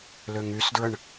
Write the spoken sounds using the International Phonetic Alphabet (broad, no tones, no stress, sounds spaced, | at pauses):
l ø ŋ y s d ɹ ə ɳ